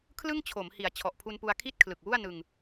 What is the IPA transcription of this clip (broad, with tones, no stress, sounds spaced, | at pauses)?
kʰ l ɯ˥˩ ŋ t͡ɕʰ o˩˦ m h i˩˦ a̯ t͡ɕʰ ɔ˨˩ ʔ pʰ u˧ n p u˧ a̯ kʰ i˥˩ t̚ kʰ l ɯ˨˩ k̚ w u˥˩ a̯ n ɯ˧ ŋ